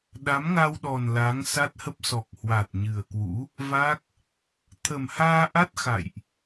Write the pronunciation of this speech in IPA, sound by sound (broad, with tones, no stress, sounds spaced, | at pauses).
ɗ a˨˦ m ŋ a˧ w ɗ ɔ˨˩ n l a˨˦ ŋ s a˦˥ t̚ h ə˦˥ p̚ s ɔ˨˩ k̚ h w a˨˩ t̚ ɲ ɨ˨˩ ə̯ k w ṵ˧˥ | v a˦˥ k̚ | t̪ʰ ə˨˩ m h aː˧ ʔ a˦˥ t̚ x a̰˧˨ j ʔ